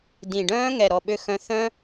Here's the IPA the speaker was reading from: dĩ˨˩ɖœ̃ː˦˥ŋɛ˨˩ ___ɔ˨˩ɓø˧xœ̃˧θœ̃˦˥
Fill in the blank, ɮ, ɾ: ɾ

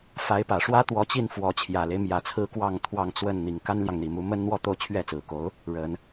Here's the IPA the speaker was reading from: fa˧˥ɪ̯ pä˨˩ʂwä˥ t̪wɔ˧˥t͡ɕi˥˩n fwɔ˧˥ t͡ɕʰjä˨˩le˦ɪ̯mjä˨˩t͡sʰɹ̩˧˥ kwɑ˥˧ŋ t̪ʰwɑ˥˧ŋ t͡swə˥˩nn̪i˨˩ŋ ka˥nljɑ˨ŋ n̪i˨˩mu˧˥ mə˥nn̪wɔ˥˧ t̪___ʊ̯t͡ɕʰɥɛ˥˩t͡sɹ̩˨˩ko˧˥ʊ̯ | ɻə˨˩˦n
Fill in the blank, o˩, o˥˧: o˥˧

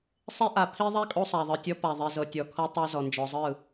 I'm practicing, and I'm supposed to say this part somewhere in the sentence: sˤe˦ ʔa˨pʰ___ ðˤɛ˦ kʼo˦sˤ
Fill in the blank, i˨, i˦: i˦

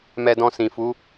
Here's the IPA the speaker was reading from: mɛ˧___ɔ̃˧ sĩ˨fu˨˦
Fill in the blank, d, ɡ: d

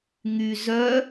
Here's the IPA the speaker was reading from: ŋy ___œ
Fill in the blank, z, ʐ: z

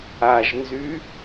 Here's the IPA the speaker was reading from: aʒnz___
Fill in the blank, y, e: y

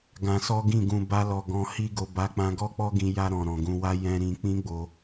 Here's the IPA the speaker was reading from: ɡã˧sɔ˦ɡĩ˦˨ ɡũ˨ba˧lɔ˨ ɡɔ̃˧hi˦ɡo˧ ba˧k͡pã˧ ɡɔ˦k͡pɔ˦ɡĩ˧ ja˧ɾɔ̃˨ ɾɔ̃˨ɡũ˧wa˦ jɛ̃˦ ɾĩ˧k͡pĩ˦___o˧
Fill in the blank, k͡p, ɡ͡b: ɡ͡b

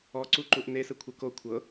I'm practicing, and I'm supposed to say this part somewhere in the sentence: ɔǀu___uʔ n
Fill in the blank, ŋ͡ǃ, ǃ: ǃ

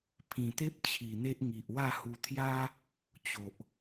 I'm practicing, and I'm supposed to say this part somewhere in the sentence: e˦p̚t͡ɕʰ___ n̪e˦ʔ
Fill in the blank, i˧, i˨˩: i˨˩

